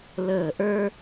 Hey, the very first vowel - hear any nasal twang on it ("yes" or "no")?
no